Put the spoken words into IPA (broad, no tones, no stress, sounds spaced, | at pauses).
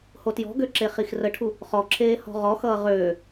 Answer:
h o t j ɔ̤ ɡ ø ǁ e χ i x r ə ʈʰ u | χ ɔ ǁʰ eː h ɔ̤ ʁ ɔ x ʌː ʁ øː